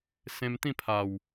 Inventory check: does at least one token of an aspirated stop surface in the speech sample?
yes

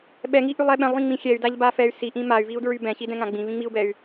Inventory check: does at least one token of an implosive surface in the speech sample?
yes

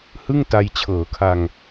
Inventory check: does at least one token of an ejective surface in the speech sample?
no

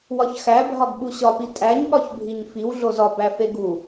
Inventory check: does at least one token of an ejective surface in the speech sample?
yes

